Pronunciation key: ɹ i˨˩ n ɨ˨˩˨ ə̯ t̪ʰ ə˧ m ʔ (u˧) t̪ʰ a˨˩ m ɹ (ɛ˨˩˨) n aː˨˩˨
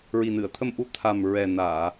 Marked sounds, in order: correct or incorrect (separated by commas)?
incorrect, incorrect